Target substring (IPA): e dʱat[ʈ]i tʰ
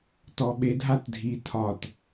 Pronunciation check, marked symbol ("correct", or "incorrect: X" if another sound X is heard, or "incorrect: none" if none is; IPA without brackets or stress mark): incorrect: dʱ